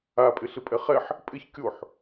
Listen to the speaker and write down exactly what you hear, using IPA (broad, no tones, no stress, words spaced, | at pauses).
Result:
apʼɪ ɬɪpʼɛχɛħ | pʼɪç kʲoħ